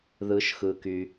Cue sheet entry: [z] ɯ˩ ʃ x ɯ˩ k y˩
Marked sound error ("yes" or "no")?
yes